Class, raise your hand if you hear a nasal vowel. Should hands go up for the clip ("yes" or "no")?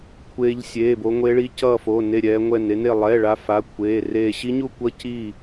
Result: no